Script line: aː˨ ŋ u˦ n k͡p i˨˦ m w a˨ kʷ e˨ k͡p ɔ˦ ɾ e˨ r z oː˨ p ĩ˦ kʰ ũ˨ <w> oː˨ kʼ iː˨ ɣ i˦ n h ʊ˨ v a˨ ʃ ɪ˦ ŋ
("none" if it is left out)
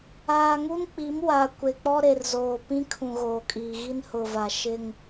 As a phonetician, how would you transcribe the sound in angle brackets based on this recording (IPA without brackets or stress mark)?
ɣ